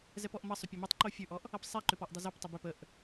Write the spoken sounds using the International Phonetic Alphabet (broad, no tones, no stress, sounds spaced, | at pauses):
z ɛ p ɔ ʔ m ʌ sˤ ʏ pʲ ʌ m ɛ tˤ ǃ o fʲ ʉ ʔ ɔ ʔ | ʌ p sˤ ɛ ǃ ʏ p ɔ ʔ dˤ ʌ z o p tˤ ʏ b ʏ p ə ʔ